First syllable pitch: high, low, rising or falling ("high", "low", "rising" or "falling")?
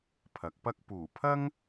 rising